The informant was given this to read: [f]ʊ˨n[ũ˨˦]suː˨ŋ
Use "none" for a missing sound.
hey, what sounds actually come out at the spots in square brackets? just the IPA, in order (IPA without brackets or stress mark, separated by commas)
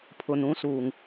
pʰ, ũ˨˦